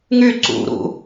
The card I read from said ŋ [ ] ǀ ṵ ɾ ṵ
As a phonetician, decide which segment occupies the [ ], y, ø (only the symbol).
y